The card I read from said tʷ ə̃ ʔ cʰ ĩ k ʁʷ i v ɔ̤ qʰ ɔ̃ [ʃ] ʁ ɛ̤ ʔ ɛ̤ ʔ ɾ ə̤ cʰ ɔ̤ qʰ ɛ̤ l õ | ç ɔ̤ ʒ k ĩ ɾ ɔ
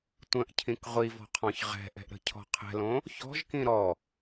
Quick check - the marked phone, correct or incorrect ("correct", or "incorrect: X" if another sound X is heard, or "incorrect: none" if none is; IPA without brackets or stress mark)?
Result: incorrect: ç